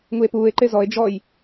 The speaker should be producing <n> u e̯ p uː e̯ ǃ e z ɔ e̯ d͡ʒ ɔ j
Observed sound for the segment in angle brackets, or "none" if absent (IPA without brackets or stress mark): ŋ